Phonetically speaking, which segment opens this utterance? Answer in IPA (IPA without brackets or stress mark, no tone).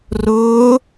r